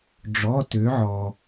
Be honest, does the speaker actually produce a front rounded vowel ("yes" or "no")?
yes